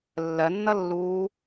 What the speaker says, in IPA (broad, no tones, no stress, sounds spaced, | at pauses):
lː ɜ nː ʌ lː uː